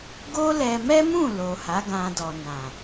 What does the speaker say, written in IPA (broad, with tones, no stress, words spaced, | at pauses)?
ɡo˦lɛ˧ mɛ˦mũ˦˨ lo˨ha˨˦ɡã˧dɔ˨ nã˨